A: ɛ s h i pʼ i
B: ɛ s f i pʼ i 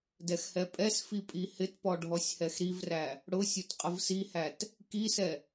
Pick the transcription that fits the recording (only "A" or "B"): B